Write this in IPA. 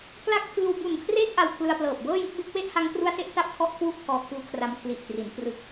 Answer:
k l a˦˥ k̚ pʰ ɯː˧ w b u˨˩ n kʰ r eː˦˥ k̚ ʔ a˧ w kʰ l ɯ˧ a̯ p l ɤː˨˩ p̚ b ɤː˥˩ j ɯ˥˩ k̚ b e˦˥ k̚ w e˥˩ ʔ h a˦˥ ŋ k r u˦˥ a̯ s e˦˥ ʔ t a˥˩ p̚ tʰ ɔ˥˩ ʔ kʰ w u˥˩ ʔ pʰ ɔː˧ kʰ uː˦˥ kʰ r a˧ m kʰ l i˨˩ ʔ t r i˩˦ n p r ɯ˨˩ k̚

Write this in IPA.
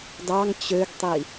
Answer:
d ɑ ŋ t͡ɕ ø ɡ tˤ i

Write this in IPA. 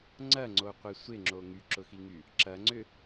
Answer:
ŋ͡ǀ ɐ ŋ͡ǀ o qʷ ɪ sʷ ɪ ŋ͡ǁ o ŋ y ǁ ʊ x i ŋ y | ǁ ɐ ŋ͡ǀ ʏ

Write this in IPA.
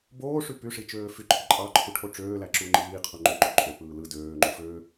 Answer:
b oː ʂ y p y ʂ i t͡ʃ øː f y ǃʼ i ǃʼ ɑ ǃʰ u ʈʰ o ʈ͡ʂ øː l æ ǁ u ŋ͡ǃ iː qʰ u ŋ͡ǃ ø ǃ o ǃʼ ø p ɯː l ɯ d øː ŋ͡ǃ u f ø

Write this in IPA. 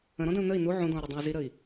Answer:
ə̃ ɾ ɔ̃ d ə̃ u̯ n ə i̯ n u ʕ ũ d ɔ̃ u̯ ɾ u dˤ ã y̯ z i ɾ ə i̯

